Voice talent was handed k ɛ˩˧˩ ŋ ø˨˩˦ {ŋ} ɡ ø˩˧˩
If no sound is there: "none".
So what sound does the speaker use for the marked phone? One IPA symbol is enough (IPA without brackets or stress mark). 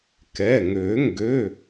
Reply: ŋ